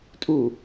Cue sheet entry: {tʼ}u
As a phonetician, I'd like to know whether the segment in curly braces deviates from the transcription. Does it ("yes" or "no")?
no